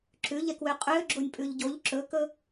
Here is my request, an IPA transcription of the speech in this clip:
ǁ ʉ ʎ ɛ k w ø qʼ ø ɡ͡ǁ o nʲ pʼ ʉ ʎ ɟ o ʎ ǁ ɵ k ɵ

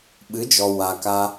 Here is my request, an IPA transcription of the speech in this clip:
ɓ ɨ˨˦ d͡ʒ ɔ˨ w a˨ k a˧

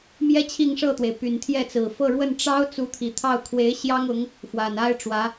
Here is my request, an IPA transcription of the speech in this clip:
m j ɛ˥ t͡ɕʰ i˥˧ ŋ ʂ ɤ˥˩ t̪ w e˩ ɪ̯ p y˨˩ n t̪ʰ j ɛ˥˩ t͡s ɹ̩˨˩ f ɤ˥˧ ɻ w ə˥˩ n ʈ͡ʂ ɑ˥ ʊ̯ t͡s u˧˥ t̪ʰ i˨˩ t̪ʰ ɑ˥˩ ʊ̯ kʰ w e˧˥ ɪ̯ ɕ j ɑ˥ ŋ ʊ˧˥ ŋ | f w a˨˩ n a˥ ɪ̯ ʈ͡ʂ w ä˧˥

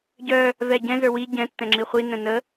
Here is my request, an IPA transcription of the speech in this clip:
ɟ œ | v ɛ ɟ ɛ̃ z ə˞ w i ɟ ɛ̃ tː ɛ̃ ŋ͡ǁ i χʷ i n ə̃ n ə

